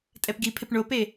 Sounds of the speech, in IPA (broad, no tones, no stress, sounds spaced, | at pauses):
tʼ ɛ p ɡ i pʰ ɪ p ɳ o p e